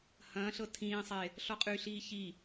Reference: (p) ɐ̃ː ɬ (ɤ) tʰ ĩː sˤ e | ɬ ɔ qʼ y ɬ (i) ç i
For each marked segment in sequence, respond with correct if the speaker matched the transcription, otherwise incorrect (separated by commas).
incorrect, correct, incorrect